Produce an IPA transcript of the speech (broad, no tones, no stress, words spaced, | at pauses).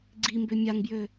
ɡ͡ǀimbø mʲaŋbjø